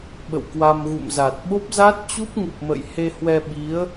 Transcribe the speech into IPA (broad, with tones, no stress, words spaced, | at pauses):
ɓə̰˧˨wkwa˧mɣṵ˧˨mza˨˩t̚ ɓo˦˥p̚za˦˥t̚t͡ɕu˦˥p̚ŋu˨˩p̚ mə̰˧˨jhe˧hwɛ˧ ɓi˨˦ə̯